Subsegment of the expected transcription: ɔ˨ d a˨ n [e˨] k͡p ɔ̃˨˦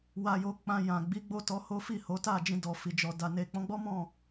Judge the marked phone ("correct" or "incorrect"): correct